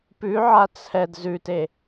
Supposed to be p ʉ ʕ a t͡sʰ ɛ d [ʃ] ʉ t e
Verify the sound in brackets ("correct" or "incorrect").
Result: incorrect